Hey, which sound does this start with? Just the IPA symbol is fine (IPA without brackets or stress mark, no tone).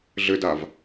ɮ